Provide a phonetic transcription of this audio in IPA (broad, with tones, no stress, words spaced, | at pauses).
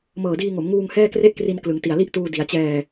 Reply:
mɤː˨˩diː˧ŋo˩˦mŋuː˧ŋ hɛː˥˩kre˥˩ʔkri˧n klɯ˩˦ŋti˨˩a̯li˥˩ʔtuː˧ di˩˦a̯t͡ɕɛː˧